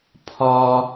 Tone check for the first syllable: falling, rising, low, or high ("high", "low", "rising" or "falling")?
high